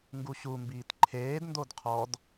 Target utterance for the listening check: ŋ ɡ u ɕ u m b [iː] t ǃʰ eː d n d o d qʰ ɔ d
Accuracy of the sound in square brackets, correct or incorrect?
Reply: correct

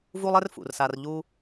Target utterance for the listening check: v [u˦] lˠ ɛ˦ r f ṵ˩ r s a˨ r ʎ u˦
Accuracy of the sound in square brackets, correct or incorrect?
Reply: correct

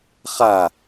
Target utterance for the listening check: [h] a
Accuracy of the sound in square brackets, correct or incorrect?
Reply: incorrect: χ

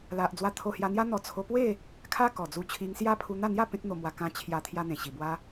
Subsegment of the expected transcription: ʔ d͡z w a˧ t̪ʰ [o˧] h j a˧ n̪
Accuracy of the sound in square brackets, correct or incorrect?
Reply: correct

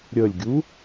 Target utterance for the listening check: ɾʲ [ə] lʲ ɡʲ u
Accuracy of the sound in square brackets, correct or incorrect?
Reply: correct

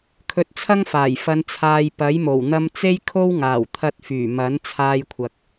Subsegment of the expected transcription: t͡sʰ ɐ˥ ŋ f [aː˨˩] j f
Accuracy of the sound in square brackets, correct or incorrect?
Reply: correct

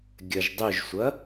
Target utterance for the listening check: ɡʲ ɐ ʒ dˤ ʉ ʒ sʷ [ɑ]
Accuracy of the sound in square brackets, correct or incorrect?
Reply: incorrect: ɐ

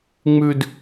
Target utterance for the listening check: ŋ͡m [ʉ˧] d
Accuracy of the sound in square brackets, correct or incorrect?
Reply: correct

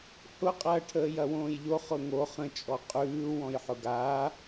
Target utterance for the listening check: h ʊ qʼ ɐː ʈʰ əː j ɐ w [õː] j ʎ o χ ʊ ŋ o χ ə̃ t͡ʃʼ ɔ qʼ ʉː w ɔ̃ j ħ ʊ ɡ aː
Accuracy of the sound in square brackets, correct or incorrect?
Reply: correct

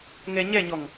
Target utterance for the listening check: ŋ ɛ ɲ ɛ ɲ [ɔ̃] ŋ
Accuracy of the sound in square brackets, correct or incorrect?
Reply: incorrect: ɔ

